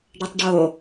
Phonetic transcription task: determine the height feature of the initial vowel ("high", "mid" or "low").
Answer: mid